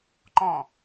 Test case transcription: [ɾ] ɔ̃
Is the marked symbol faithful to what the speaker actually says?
no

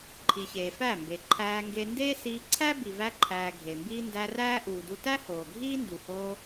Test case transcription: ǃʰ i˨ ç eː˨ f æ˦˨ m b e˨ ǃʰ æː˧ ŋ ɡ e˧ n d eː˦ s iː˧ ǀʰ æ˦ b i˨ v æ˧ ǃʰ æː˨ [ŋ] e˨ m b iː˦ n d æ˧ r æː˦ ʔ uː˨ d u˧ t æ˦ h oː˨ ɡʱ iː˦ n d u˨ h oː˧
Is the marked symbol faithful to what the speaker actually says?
no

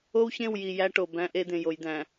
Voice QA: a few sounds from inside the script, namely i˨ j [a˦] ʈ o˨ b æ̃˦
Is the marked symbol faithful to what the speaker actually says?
no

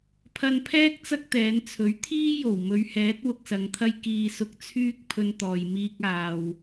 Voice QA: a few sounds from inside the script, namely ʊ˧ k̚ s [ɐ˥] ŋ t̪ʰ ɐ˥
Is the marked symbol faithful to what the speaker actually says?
no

